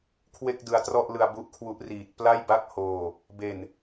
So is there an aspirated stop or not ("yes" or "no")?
yes